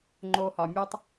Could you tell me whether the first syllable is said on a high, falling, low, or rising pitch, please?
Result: low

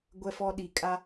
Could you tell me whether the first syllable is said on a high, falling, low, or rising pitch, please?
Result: high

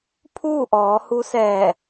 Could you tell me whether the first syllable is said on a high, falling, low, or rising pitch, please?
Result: falling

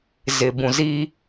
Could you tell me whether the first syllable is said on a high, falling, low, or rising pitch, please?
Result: low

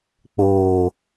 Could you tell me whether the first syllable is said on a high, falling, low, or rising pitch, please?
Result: high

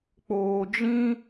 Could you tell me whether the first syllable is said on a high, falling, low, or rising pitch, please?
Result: low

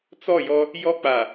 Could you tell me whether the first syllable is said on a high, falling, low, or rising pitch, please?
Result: falling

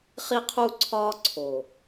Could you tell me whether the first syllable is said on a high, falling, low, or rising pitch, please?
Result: high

